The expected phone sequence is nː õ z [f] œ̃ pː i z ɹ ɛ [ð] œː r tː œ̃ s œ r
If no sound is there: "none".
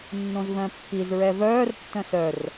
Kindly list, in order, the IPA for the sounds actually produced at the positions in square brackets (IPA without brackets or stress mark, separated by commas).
v, v